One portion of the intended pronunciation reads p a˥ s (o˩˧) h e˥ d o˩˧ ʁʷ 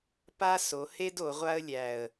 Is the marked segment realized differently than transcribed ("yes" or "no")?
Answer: no